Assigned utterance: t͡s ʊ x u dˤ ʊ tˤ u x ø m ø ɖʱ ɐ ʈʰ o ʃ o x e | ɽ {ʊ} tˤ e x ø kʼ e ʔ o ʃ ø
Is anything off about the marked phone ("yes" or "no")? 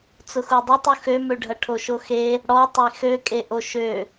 yes